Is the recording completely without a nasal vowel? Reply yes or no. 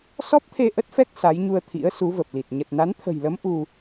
yes